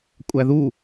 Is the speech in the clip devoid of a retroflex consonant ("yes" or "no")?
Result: yes